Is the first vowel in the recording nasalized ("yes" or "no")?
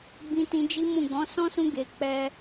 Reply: yes